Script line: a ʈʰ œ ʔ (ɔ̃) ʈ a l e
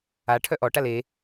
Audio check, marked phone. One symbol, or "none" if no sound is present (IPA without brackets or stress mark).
ɔ